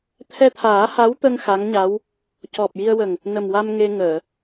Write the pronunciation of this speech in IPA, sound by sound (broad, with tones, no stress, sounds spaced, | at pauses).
t̪ʰ ɛ˧ t̪ʰ aː˨˩˦ h a˧˥ w t̪ ə˧ ŋ x a˧˥ ŋ ɲ a˧˥ w | c ɔ˨˩ p̚ j i˧ ə̯ w ə˨˩ ŋ | n ə˨˩ m w a˧ m ŋ e˧ ŋ əː˨˩˨